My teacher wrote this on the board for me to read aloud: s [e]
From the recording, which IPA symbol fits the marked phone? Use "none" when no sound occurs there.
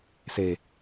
e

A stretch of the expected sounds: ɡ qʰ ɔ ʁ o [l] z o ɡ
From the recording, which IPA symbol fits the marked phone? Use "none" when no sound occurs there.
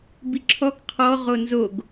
n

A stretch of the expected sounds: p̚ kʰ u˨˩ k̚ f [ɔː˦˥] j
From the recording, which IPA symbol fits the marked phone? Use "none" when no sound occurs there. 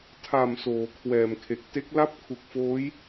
oː˦˥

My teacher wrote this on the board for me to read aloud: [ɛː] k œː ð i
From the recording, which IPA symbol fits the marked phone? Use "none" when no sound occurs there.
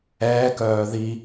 ɛː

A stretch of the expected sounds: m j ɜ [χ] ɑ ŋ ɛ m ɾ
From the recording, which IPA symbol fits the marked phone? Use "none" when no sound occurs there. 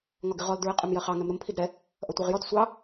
χ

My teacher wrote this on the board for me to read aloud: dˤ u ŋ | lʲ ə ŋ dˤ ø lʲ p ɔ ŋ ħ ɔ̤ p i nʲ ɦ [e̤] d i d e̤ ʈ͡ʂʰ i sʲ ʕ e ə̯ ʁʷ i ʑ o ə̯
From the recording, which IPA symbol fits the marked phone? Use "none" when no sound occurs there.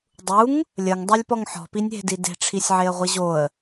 e̤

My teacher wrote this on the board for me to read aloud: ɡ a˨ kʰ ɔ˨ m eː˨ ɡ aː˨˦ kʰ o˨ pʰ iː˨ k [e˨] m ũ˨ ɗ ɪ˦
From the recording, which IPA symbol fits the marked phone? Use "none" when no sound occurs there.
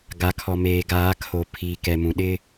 ɛ˨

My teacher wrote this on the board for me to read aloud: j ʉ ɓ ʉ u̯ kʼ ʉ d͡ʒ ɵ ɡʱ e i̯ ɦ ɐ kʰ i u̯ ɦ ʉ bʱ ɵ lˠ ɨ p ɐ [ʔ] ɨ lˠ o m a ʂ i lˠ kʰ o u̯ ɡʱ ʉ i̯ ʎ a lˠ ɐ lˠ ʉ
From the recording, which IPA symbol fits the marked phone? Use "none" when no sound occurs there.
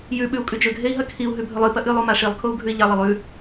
ʔ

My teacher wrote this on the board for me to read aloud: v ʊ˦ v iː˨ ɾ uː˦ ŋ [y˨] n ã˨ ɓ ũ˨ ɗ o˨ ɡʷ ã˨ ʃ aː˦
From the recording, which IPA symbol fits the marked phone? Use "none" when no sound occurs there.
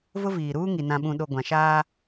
i˨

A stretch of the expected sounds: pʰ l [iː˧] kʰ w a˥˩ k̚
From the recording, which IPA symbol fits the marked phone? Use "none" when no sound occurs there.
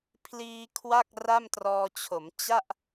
iː˧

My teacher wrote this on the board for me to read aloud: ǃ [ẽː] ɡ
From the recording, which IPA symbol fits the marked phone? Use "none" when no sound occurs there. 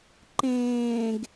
ẽː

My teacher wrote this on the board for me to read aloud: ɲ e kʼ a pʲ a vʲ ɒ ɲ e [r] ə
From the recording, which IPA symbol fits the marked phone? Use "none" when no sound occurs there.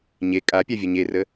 r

